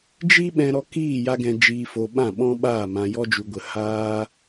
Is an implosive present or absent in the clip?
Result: present